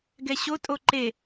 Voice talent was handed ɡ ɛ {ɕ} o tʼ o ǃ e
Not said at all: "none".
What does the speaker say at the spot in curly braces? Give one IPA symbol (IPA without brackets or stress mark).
ɕ